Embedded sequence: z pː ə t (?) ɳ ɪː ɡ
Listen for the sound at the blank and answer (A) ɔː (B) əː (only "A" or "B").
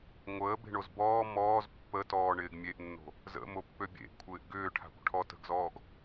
A